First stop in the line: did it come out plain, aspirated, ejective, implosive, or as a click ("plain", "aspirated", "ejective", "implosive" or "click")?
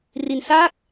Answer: plain